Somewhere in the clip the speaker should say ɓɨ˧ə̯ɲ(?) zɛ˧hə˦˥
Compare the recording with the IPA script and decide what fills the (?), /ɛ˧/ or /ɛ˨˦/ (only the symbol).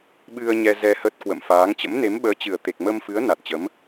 ɛ˧